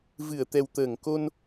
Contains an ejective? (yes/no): no